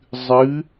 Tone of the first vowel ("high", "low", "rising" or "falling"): rising